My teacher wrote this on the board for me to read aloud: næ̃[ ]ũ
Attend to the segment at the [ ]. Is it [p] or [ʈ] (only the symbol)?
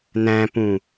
p